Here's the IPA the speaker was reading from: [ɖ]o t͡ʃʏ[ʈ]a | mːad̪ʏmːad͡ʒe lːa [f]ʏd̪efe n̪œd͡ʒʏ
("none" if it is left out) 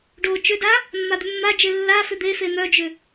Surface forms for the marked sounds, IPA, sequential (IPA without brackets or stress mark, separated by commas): ɖ, d, f